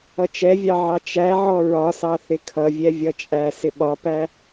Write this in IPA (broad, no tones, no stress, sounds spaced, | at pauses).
ʌ t͡ʃ ɛ vʲ ɑ ʕ ɑ t͡ʃ æ ʕ ɔ ɹ ɒ s ɑ θ ɪ kʰ ʌ vʲ ɛ vʲ ʌ t͡ʃʼ æ s ɪ ɓ ɒ p æ